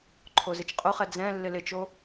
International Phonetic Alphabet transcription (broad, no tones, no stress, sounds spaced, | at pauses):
ǃʰ o z ɪ t͡ʃ qʼ ʊ χ ɛ d͡z ɛ̃ lː ɪ l ɪ t͡ʃ o